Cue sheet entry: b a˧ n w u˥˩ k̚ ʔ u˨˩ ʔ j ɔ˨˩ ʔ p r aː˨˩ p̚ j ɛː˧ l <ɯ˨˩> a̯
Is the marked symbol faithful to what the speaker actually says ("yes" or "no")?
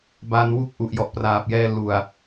no